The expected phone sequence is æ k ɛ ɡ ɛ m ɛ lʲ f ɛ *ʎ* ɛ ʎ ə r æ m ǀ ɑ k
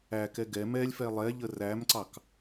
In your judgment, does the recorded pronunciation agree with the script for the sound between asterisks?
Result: no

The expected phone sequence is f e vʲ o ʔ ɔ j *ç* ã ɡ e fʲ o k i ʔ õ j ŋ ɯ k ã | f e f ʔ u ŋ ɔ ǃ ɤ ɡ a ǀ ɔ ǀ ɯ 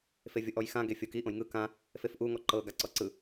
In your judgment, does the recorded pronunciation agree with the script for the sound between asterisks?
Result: no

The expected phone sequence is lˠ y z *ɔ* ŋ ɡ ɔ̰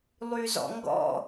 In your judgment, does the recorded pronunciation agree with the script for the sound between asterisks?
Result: no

